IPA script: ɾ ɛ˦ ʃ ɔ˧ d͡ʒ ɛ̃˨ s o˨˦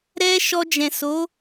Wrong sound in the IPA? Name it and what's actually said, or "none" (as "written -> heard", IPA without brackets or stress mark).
none